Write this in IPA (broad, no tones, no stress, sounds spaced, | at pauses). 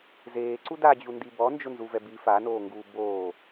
z eː ǀ u d a d͡ʑ u n d i b ɔ n d͡ʒ ʊ n z u v ɛ b i f a n oː ŋ ɡ uː b oː